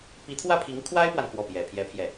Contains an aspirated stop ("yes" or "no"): yes